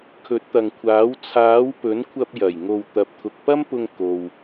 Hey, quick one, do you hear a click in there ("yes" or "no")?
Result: no